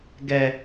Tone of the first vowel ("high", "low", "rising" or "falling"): high